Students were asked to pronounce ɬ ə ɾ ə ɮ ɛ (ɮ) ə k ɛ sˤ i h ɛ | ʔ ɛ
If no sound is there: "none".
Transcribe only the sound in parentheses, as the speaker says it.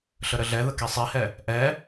ð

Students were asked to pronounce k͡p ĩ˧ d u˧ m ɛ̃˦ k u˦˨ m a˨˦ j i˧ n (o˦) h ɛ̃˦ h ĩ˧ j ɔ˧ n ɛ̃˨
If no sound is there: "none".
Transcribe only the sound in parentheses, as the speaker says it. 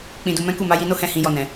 o˦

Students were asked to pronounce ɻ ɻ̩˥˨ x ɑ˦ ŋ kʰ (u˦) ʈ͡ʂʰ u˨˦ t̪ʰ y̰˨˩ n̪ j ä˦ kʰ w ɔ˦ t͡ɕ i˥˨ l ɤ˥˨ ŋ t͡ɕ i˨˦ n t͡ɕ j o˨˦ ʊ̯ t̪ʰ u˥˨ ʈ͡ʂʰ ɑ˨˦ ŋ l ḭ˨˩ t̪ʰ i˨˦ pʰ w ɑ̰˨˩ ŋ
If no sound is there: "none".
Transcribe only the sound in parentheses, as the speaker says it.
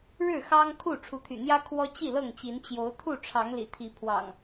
u˥˨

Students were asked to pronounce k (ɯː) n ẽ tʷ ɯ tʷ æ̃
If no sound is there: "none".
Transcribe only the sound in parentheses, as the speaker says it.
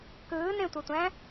ɯː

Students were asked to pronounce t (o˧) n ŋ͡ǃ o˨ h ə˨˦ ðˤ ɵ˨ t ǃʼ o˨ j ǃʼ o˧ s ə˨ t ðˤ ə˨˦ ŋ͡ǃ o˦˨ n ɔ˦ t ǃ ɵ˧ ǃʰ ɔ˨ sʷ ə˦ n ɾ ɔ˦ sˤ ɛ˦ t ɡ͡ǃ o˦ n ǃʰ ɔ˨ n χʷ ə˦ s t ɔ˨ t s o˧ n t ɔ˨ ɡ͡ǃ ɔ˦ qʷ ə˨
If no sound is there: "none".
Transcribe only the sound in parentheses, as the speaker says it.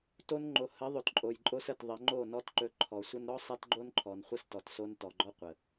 o˧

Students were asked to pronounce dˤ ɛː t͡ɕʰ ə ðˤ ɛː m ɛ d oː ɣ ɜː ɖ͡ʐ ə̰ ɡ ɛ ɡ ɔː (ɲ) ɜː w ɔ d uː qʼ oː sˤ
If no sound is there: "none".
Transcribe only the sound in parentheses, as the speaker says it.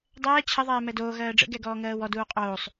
ŋ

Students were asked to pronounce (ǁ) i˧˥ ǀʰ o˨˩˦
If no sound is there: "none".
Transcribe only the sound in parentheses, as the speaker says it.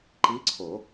ǃ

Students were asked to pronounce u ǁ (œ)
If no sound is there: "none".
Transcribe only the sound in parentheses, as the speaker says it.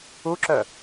œ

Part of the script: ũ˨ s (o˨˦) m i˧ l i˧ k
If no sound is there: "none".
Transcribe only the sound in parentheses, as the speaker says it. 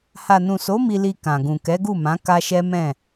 o˨˦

